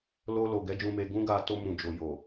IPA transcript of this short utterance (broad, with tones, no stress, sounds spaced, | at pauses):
l o˧ l o˨ ɡ ɛ˨˦ d͡ʒ ũ˧ m e˧ ɡ ũ˦ ɡ a˧ t o˧ m ũ˨ d͡ʒ o˨ j o˨